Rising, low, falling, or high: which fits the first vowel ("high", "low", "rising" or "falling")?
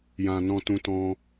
low